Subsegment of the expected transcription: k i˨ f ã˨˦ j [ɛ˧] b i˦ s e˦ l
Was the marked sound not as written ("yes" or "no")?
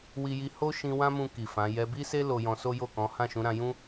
no